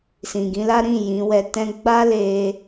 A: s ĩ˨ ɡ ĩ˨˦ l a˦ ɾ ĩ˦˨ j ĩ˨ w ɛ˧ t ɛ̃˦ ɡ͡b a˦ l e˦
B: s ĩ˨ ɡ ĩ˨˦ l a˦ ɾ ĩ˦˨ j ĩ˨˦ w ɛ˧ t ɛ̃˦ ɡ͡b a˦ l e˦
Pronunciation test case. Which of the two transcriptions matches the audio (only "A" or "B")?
B